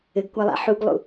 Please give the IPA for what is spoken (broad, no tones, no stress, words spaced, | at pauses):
ɘɡkʷalˠa̰ ħuɡlˠṵ